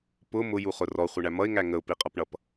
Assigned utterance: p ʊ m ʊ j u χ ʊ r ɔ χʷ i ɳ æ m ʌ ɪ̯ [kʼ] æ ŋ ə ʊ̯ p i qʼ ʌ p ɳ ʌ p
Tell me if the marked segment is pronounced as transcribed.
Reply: no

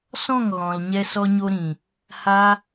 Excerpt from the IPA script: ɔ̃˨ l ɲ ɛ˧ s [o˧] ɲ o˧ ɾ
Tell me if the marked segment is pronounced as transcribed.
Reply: no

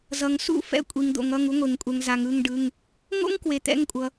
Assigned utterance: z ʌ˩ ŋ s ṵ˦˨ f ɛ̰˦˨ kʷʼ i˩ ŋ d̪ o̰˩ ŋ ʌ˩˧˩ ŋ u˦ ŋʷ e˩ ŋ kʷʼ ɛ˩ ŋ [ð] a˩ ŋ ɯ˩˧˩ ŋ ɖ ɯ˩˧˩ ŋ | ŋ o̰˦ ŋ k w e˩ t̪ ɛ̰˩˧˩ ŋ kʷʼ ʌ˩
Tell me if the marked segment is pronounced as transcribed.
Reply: no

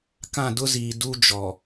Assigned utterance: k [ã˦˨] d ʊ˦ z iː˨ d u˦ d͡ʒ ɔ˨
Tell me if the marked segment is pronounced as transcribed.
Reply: yes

